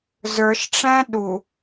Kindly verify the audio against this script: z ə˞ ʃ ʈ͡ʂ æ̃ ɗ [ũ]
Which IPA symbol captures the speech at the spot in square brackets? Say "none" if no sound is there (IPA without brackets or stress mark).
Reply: u